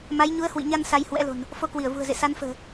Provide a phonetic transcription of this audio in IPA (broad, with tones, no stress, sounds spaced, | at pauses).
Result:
m a˨˦ j ɲ u˨˦ ə̯ h w ḭ˧˨ ɲ a˧ n s a˧ j h w ɛ̰˧˥ l o̤˨˩ n | f o˧ k w i˧˩ ə̯ v ṳ˨˩ ə̯ z ḛ˧˨ s a˨˦ n f ə̤ː˨˩